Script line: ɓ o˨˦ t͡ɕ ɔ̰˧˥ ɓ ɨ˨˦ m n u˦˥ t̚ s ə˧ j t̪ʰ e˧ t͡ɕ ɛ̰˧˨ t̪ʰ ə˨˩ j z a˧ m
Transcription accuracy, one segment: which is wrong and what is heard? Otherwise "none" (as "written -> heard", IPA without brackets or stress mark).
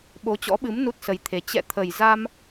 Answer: none